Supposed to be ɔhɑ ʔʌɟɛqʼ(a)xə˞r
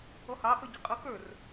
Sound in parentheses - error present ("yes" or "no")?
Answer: yes